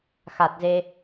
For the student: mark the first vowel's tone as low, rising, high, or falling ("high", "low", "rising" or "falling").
low